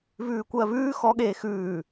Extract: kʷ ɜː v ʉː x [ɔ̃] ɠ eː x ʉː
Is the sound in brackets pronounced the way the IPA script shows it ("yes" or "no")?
no